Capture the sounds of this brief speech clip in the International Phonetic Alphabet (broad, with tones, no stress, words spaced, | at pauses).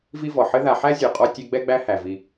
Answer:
vi˥vɔ˩ ħɘ˦ða˨ħæ˥ zʲu˨qʼɔ˥ tʲe˦ɡ͡bɛ˥ɡ͡bæ˦ hæ˩vi˨